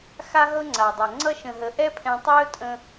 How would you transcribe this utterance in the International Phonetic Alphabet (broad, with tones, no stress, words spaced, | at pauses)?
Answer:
xa˦ɦɤ˦ ŋ͡ǀa˨dˤɤ˨ ŋ͡ǀʌ˧ʃə̃˨ɦə˨ ʔɛ˦pʰɛ̃˧ tˤɵː˦ tʼə̃˧